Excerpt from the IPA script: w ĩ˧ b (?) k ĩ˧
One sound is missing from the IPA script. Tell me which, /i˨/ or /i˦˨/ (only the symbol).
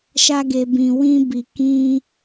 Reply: i˨